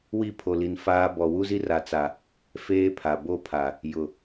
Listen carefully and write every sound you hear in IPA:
wi˦˨ pʰo˨li˨n faː˦ bɔ˨wu˦zi˦r a˨t͡sa˨ | feː˦pʰa˨ bo˦˨pʰa˨ | jʊ˨

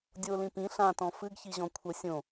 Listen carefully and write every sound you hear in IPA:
dʲolĩ pĩ ɬãtɔ̃ fɨɡçiʑɔ̃ kʷʰə sʲõ

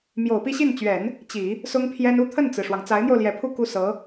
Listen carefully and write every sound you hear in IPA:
mjo˨˩ʊ̯pi˥˧ɕi˥˩nt͡ɕɥɛ˨˩˦n | t͡ɕi˨˩˦ | sʊ˥ŋpʰjɛ˥n u˥ t̪ʰə˥˩nt͡sɹ̩˩ʂwɑ˩ŋ t͡sa˧˥ɪ̯n̪jo˧ʊ̯ljɛ˨˩ pʰu˥˧ ku˥˩sɤ˧˥

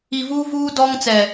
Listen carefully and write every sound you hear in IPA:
i˨vuː˦vuː˦ dɔ˦ŋt͡sɛ˨

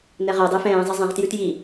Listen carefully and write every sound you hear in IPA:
nɛʁɛdˤɪːf ɛ̃ːzˤe zˤẽʁtjʉt ji

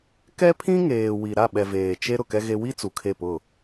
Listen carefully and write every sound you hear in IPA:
kɛ˦pʰĩ˦ ŋeː˨ wi˨ɾa˦˨ɓɛ˨veː˨ t͡ʃe˦ ɾʊ˨kɛ˦ɣe˦ wi˦ t͡su˨kʰe˦˨pʊ˦˨

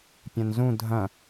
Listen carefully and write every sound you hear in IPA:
pʲɐ̃nzũ dʱɐ̃

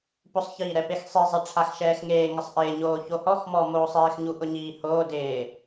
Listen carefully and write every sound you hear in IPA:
pʊsˤçiːɾɛ pexsˤizˤɛ ʈ͡ʂʰaxʃɛːxŋeːŋɪsˤ ʔɪːɲoː çohɔx mɔmoːsˤeːxɲu ʔʊɲiːhoː dɪː

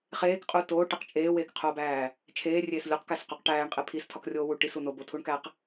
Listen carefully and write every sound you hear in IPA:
χeːkqʼu toːʈeq t͡ʃʼeːweːkqʰoːbæː | t͡ʃʰeːrʲeːs lʲuqkæsqoq ʈæːɳqʼe pʰistʰɒkrʲoːwu ʈisu nobotʰuɳkæq

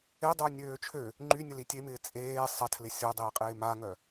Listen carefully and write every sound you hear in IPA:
edˤœ nʲøːt͡ʃʰø | ŋ͡ǃy nʲəlitʲemɪː t͡sʼeː sˤɐtʰlɪ sʲodˤɪːqʼɪː maŋœ

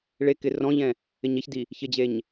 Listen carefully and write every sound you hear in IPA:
ɭekɪ rɔ̃ʎɛ̃ | ɪɲeçdi | çɪd͡ʑeɲ

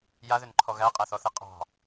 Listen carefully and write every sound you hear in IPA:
jaðʏnǃʰɔ ɣæqʼæθɔθe qʼɑ̤

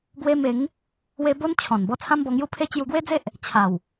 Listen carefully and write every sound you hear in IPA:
bwe˧me˨˦ŋ | we˦ bo˦nt͡ɕʰɔ̃˨˩nbɔ˥˧ t͡sʰã˦mbɔ˧ŋju˦pʰe˦ t͡ɕju˧ɡwe˦d͡ze˦ʔ | t͡ɕʰa˨˩w

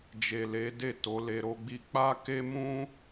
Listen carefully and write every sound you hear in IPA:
d͡ʒe˨le˨˦de˦˨ to˨˦le˧ɾo˦ɡ͡bi˦ k͡pa˦ke˦mũ˦

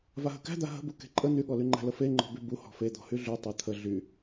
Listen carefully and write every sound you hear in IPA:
vaɦə̤kæ̤d̪a ɦə̤bu ke̤ǃʼə n̪yɠɔlyŋ͡ǃæ̤ ləfeŋ͡ǃɔ̤ bybu hɔ̤fe d̪ɔ̤hyɮy tˤə t̪ʰə ɮy

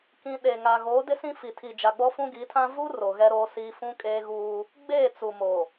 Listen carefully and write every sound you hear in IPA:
kĩ˨ ɗe˨ŋa˨ ɣo˨˦ dɪ˦sĩ˦fi˨tʰi˨ d͡ʒa˨ɡ͡bɔ˦fũ˦ ɡi˨˦tʰã˦ vu˦ ro˨ɣɛ˦ɾoː˦siː˦ fũ˦kʼeː˦ɣuː˦ | ɡ͡beː˦˨t͡su˨mo˨

